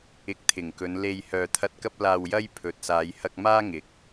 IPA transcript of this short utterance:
ɪ˧k̚t̪ʰɪ˨˩ŋkɵ˨˧n le˧j hœː˨t̪ʰɐ˧t̚kɐ˥p̚ laː˧wjɐ˥j pʰɵ˨˥t̚saː˨˧j hɐ˧k̚maː˥ ŋɪ˨˥k̚

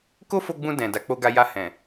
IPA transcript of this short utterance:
ko˦fo˧ɡ͡bũ˧ dɛ̃˨da˨˦ k͡po˧ɡa˧ ja˧ hɛ̃˨

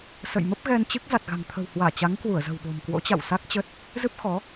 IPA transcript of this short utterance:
sə̰˧˨j mə˦˥p̚ɣɛ˧nt͡ɕɨ˦˥k̚ za˨˩t̚ɣa̤˨˩ŋt̪ʰə̤˨˩whwaː˧˩ t͡ɕa˨˦ŋkwu˧˩ə̯zə̤˨˩wɓo̤˨˩m kwo̰˧˥t͡ɕa̰˧˨wsa˦˥k̚t͡ɕə˦˥t̚ | zɨ˦˥p̚xɔ˨˦

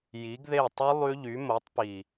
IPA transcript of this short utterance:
ji˨˥ɡðe˥˩tˤu˦˥ lˠy˦˥ʎy˨˥mo˨˥tˤpi˨˩

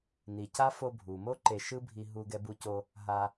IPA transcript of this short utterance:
ni˩ ca˥ fo˧bʱu˩mo˥ ǃe˧ ʃɯ˥bʱi˧ ɦu˧ ɡɛ˧bu˧ co˧ | ɦa˧

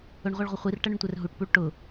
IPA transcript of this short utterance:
ʊɳʁʷiɭʁʷə χʷirʈʌɳʊɳtʷɛr ɦuʈpuɭ ʈʊ

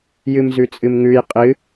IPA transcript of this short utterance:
jɨmzʉt͡sʼɨmŋʉj qʼɨ

